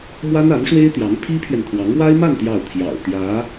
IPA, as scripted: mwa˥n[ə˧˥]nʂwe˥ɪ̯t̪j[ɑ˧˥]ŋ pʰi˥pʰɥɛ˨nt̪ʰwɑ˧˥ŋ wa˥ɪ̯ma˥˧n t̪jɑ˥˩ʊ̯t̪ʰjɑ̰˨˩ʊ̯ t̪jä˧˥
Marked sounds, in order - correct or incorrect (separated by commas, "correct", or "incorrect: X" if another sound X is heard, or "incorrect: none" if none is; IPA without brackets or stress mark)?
incorrect: a˧˥, correct